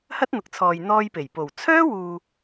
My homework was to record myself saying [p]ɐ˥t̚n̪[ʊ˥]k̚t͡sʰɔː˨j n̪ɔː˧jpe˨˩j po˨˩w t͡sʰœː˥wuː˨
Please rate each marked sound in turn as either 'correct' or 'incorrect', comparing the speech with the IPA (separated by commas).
incorrect, incorrect